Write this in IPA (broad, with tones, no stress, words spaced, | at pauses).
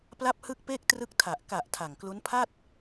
pla˥˩p̚hɯ˥˩k̚peː˥˩k̚ trɯ˥˩k̚ tʰa˨˩ʔ ka˨˩ʔ tʰa˨˩ŋklu˦˥n pʰa˥˩t̚